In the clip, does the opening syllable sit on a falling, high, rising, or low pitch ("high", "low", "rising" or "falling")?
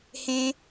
high